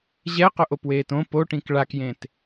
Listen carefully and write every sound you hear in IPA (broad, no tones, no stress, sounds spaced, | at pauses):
ʑ ɛ q ʊ ʔ o p w eː t õ p o ʈ ĩ k ɭ a k j ẽ t